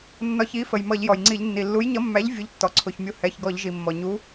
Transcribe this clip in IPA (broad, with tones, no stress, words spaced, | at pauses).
nːɒ˧çi˨˥fə˩j mʌ˧˩˧ʎjɔ˩jŋ͡ǀi˧˩˧ʎ nːi˩lːu˨˥jɲʌ˨˥mːæ˨˥ʎ vʲu˨˥ʎtːɔ˩ǀʰʊ˩˧˩ç mʲu˧ hɛ˩˧˩çɡɔ˧˩˧ʎʒi˩mːɔ˩ ɲu˨˥